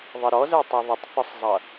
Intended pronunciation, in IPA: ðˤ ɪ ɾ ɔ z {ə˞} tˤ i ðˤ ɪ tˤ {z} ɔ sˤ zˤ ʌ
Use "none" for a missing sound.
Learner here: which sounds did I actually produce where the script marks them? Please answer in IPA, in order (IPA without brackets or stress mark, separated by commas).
ə˞, θ